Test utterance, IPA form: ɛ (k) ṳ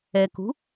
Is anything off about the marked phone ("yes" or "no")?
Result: no